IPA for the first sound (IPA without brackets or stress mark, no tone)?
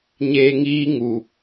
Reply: ɲ